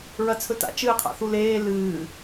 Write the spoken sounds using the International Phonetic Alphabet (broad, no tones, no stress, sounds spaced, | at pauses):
ɹ ɐ t͡sʰ ɵ t a̰ t͡ʃ ɨː qʰ a̰ θ u l eː l ɨː